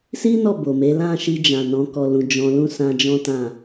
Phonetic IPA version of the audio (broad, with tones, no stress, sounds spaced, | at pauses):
s i˦ n ɔ˦˨ b o˨ m e˨˦ l ã˦˨ ʃ i˧ d͡ʒ ã˨ n ɔ̃˨˦ k ɔ˧ l ũ˧ d͡ʒ ɔ̃˧ l ũ˦ s ã˧ d͡ʒ ɔ̃˦ t ã˦˨